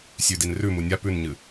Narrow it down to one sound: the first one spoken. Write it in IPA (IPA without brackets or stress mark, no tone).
sʲ